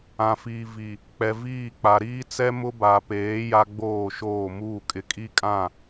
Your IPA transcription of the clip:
ã˨fiː˨ vi˨ | k͡pɛ˨viː˦˨ k͡pa˨ɾiː˦t͡sɛ˦ mʊ˦ba˨peː˨˦ ja˦ɡ͡boː˦˨ʃoː˦˨muː˦˨ kʼɪ˨kʼi˦kʼã˦˨

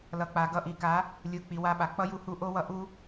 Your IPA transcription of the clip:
lʌ˨k͡pa˨ɡʌ˧ ʔi˨ka˨˦ | lʲɯ˨k͡pi˨ wa˧ɓa˨ k͡pʌ˦ ju˧hu˧ʔo˦wʌ˧ ʔu˦

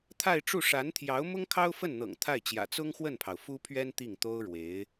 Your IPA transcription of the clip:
t̪ʰa˥˧ɪ̯ʈ͡ʂu˥˩ ʂa˧˥nt̪ʰjɑ˧˥ʊ̯ mʊ˥ŋkʰɑ˥ʊ̯fə˥˩nn̪ɤ̰˨˩ŋ t̪ʰa˥˩ɪ̯t͡ɕjä̰˨˩ t͡sʊ˥ŋxwə˥˩npʰɑ˩ʊ̯ fu˥pʰɥɛ˥n t̪i˥˩ŋt̪o˥ʊ̯ɻwe˧˥ɪ̯

